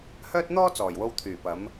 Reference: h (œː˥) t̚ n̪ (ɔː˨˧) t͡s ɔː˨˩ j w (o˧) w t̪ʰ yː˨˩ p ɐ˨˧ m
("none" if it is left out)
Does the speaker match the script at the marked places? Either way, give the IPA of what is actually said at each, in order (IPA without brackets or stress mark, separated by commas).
œː˥, ɔː˥, o˧